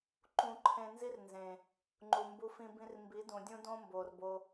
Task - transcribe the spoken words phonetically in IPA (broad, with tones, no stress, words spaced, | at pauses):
ǃũ˧ǃʰẽ˧nzi˦rnzẽ˨ | ŋ͡ǃu˨mbu˧fĩ˧ bĩ˧rmbi˨˦dũ˨dʲũ˦ dõ˦mbo˨rbo˧